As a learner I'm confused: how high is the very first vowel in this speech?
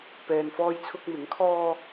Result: mid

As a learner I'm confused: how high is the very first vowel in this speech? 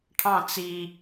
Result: low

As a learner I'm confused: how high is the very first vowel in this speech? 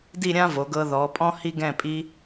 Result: high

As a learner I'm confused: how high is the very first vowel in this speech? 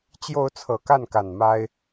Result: mid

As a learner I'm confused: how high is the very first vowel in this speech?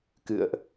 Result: high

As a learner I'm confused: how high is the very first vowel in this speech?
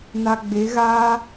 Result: low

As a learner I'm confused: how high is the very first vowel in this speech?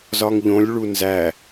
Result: low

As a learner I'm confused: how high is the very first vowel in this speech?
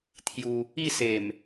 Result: high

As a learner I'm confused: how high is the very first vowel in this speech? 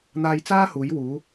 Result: low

